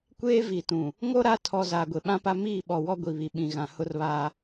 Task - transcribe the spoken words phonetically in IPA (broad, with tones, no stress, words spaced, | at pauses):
kʷeː˦vi˨tũ˨ | ŋo˦ ɾa˦ tʰɔ˨ zaː˨ɡʷe˨ɓã˦pa˦ miː˦˨ɓɔ˨wɔ˦ ɡʷi˨βi˨ɓĩ˨ɣã˨ hʊ˦rβaː˦